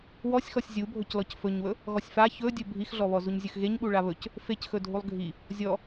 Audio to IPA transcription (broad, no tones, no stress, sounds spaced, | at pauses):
w ɔ sʲ x ɔ sʲ zʲ u bʱ ɵ c l ɔ c f ɵ ɲ w ɵ | ɣ ɔ sʲ f a ç ɵ dʲ ɵ bʱ i x ɮ ɔ β ɔ z u ɲ zʲ ɵ x ɣ e ɲ ɓ u ɭ a β ɵ c | f e c x ɵ dʱ u lˠ ɡʱ i | zʲ ɔ